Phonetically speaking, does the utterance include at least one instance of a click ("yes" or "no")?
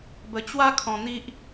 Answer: no